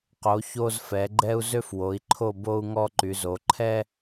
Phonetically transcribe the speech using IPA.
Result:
q o˨˦ ç o˥ z f ɛ˨˦ ɡ͡ǃ ɛ˥ u̯ z ø˥ f w o˨˦ i̯ ǃʰ o˥˨ b o˥ u̯ ŋ ɔ˥ ǃ y˨˦ z o˨˦ ǃʰ ɛ˥

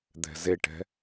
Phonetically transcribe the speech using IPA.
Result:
d̪ ɛ̤ z e ʈ ɛ̤

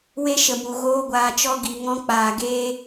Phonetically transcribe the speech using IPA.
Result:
w e˦ ʃ ə˨ m u˨ ɣ oː˧ ɡʷ aː˨ t͡ʃ ɔ˧ ɡ i˨ ŋ ɔ̃˧ k͡p aː˨ ɡ eː˧

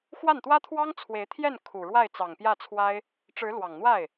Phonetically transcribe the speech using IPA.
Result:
x w a˥˩ n t̪ w ä˥ t̪ʰ w ɑ˥ ŋ t͡sʰ w e˧˥ ɪ̯ t̪ʰ j ɛ˥˩ n kʰ u˨˩ ɻ w a˥˩ ɪ̯ t͡s ɑ˨˩ ŋ p j ä˥˩ t͡sʰ w a˥ ɪ̯ | ʈ͡ʂ ɻ̩˧˥ l w ɑ˨˩ ŋ n̪ w a˥˩ ɪ̯

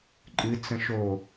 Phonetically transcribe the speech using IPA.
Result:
ǃʼ ɨ t͡s ə̃ ʃ o

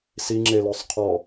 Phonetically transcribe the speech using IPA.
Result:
s i ŋ͡ǁ e l œ sˤ qʰ ɔ

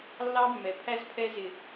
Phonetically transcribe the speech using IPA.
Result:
lː ɑ˦ mː ɛ˨ pʰ æ˦ z pʰ ɛ˦ z ɪ˨

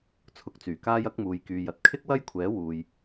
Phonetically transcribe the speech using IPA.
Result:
t͡sʰ ʊ˨˥ k̚ t͡s yː˨˩ k aː˧ j ɐ˨˥ k̚ m uː˨ j k yː˨ j ɐ˨ t̚ kʰ ɪ˥ k̚ w ɐ˥ j kʷʰ ɛː˨˥ w uː˨ j

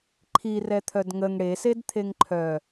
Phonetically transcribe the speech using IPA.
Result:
ǃʰ i r ɛ t̪ʰ œ d ŋ ə ŋ ɽ e s e d t̪ʰ e ŋ ǃʰ œ

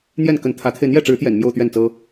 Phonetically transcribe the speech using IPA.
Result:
n̪ j ɛ˥˩ n k ə˧˥ n t̪ʰ ä˧˥ t̪ʰ e˧ ɪ̯ n̪ j ɛ˥˩ ʈ͡ʂ ɻ̩˧˥ t̪ j ɛ̰˨˩ n m j o˥˧ ʊ̯ t̪ ɥ ɛ˥˩ n t͡s ɤ˥

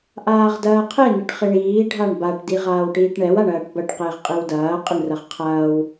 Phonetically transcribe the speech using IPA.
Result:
ʔ aː ʁ d ɐː qʰ e n ɪ ʈ χ ɪ ɳ iː ɖʱ a ɳ b a ʈ d i ʁ aː w ʈ iː ʈ ɳ ɛ w a ɳ ɐː ʈ b ɐ ʈ q ɪː ʁ qʼ i w d ɐː qʼ ɪ ɳ r ɐ ʁ qʰ ɐː w

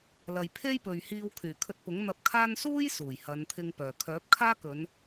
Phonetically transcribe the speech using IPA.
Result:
l ɐ˨ j pʰ e˥ j p ɵ˨ ɥ h iː˧ w kʰ yː˨˩ kʰ ɵ˧ t̚ p ʊ˨˥ ŋ n̪ ɐ˧ p̚ kʰ aː˥ n s uː˥ j s uː˨˩ j h ɐ˨˧ n t̪ʰ ɪ˧ ŋ p œː˨ kʰ œː˨˥ p̚ kʰ aː˥ k ɵ˨˧ n

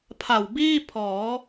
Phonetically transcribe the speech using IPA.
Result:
pʰ a˨˩ w b iː˥˩ pʰ ɔː˩˦

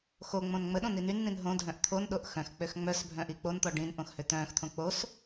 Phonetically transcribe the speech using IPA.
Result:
x o ŋ͡m õ n ŋ͡m ə ɗ õ n̪ i n y n n̪ ĩ n ɦ õ dʱ œ̃ ʔ t̪ʰ o n ɗ o ʔ x œ̃ x k͡p ø x ŋ͡m œ s bʱ œ̃ ʔ i k͡p o n t̪ ɔ ɖ ĩ n ʔ õ x h ø t̪ œ̃ː x t̪ʰ õ k͡p o s

